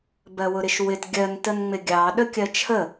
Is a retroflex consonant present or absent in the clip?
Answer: absent